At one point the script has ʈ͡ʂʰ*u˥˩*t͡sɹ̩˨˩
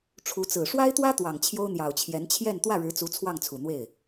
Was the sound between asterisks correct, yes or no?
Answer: no